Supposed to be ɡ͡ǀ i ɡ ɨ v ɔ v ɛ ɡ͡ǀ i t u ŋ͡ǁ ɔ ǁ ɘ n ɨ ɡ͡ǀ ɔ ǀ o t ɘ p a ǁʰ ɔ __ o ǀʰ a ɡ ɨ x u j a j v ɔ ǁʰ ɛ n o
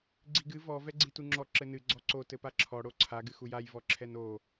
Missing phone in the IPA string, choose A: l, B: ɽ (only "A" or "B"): B